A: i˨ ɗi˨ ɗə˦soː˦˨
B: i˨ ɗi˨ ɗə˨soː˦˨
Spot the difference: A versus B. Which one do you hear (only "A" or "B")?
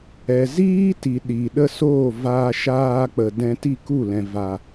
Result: A